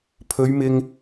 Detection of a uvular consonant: absent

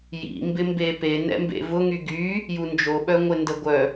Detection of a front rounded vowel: present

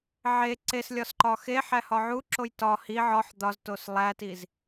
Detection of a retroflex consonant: absent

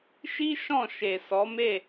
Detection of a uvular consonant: absent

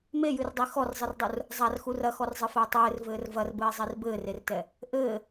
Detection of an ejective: absent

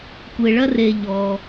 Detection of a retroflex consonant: present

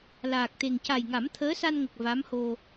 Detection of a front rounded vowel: absent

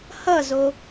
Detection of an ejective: absent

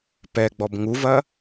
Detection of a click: absent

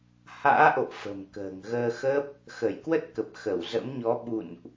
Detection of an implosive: present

